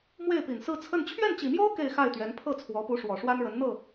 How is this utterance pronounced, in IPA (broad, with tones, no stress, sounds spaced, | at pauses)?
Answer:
m w e˥˩ ɪ̯ p i˨˩ n s ɹ̩˥˧ t͡sʰ ə˥˧ n t͡ɕʰ ɥ ɛ˥˩ n t͡ɕ i˨˩ m j o˥ ʊ̯ k e˥˧ ɪ̯ x a˥˩ ɪ̯ t̪ ɥ ɛ˧˥ n pʰ ɤ˥˩ t͡sʰ w ɔ˧˥ p u˧˥ ʂ w ɔ˨˩ ʂ w a˥ n ɻ ə˧˥ n n̪ ɤ˥˩